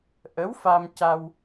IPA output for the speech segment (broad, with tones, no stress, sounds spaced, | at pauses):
ʔ ə˧˥ w f a˧ m c a˧ w